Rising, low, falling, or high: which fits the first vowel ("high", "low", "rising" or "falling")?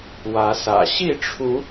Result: rising